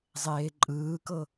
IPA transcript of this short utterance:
zˤeːǃʼɯːkɤ

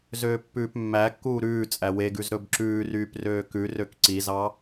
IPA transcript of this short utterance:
zøːpːʉːpmːækːuː ɾʉː t͡sʼæweɡʉz ɾɵbǁʉːryːp røːkʉrøk ǀizɑ

